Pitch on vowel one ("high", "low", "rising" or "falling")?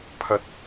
rising